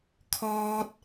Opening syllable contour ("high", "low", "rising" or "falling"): high